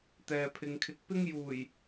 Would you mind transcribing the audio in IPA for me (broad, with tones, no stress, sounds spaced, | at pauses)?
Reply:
t̪ ɛː˨ pʰ ɪ˨ ŋ kʰ ɪ˨˥ k̚ p ɪ˥ ŋ j uː˨˩ j